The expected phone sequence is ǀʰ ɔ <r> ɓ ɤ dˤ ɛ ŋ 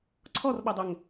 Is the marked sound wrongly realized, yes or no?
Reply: no